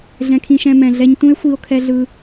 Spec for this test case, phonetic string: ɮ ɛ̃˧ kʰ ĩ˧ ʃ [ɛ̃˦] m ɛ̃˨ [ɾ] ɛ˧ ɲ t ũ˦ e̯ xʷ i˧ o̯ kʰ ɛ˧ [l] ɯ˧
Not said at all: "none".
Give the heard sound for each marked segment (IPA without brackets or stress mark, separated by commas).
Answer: ɛ̃˧, ɮ, ɮ